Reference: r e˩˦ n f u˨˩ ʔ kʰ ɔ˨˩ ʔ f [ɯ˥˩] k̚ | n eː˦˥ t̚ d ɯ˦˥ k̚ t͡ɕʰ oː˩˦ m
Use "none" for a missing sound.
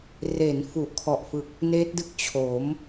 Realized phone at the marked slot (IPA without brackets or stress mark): ɯ˨˩